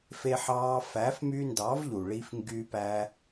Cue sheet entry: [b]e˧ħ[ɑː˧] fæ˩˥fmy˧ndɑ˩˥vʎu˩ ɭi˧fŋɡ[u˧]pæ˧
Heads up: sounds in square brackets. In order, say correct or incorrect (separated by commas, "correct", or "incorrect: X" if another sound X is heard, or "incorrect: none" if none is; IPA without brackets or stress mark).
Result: incorrect: f, correct, incorrect: y˧